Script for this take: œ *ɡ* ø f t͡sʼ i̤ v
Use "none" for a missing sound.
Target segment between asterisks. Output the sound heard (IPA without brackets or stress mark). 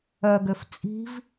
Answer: ɡ